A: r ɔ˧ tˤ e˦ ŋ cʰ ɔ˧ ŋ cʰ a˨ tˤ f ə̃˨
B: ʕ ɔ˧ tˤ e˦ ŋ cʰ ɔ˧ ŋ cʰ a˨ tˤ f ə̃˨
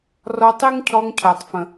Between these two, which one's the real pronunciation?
A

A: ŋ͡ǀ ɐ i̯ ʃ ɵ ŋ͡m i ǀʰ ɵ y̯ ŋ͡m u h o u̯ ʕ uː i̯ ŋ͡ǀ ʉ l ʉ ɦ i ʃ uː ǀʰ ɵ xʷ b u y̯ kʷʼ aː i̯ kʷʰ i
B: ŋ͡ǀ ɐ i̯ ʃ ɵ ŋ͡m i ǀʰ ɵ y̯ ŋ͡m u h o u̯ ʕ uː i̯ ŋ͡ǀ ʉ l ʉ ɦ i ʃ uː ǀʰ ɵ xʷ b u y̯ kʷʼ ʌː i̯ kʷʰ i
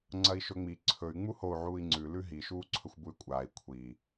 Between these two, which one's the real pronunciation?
A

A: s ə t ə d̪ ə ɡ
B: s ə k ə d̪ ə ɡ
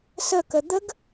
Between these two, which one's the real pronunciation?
B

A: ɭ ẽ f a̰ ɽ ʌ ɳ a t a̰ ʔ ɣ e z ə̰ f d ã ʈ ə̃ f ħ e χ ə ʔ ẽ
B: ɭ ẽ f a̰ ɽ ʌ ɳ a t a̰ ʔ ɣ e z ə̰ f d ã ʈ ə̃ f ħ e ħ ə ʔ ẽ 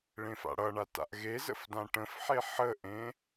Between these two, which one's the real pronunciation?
B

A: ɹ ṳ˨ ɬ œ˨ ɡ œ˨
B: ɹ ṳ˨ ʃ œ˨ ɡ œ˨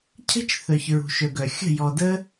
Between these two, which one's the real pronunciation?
B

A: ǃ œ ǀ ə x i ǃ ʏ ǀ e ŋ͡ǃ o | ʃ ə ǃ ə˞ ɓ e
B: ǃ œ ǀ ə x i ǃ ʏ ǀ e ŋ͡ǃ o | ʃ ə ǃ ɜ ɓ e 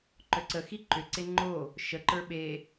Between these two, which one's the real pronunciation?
A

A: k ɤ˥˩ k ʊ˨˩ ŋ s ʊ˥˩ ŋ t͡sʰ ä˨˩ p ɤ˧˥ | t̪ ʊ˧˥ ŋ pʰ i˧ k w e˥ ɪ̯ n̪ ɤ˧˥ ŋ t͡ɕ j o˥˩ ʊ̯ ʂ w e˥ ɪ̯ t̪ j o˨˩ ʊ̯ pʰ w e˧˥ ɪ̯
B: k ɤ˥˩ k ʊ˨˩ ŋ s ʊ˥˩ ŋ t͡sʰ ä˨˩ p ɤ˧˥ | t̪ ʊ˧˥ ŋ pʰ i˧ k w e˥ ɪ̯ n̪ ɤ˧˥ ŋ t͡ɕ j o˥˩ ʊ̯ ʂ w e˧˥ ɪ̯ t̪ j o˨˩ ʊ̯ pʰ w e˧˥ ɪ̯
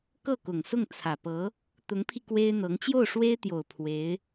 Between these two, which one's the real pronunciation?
A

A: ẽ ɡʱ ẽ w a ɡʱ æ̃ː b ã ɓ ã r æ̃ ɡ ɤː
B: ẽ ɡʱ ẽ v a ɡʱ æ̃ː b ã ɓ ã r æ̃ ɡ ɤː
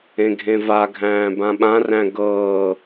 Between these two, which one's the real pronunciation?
B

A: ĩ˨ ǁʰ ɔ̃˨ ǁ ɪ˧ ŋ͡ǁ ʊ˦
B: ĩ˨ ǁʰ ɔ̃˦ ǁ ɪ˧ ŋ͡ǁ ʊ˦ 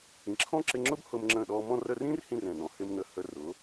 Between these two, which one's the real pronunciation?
B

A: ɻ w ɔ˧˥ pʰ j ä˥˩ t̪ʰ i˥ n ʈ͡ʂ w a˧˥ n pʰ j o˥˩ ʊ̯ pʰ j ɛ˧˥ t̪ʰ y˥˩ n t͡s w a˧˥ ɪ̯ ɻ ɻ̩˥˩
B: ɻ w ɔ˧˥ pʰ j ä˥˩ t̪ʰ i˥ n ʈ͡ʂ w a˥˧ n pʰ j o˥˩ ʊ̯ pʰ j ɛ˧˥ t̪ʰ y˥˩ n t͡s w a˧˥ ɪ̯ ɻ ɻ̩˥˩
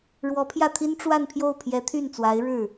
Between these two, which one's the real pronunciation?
B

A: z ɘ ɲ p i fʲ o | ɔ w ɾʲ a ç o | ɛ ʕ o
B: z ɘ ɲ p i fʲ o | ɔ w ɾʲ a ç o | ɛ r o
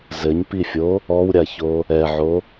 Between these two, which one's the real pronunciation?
A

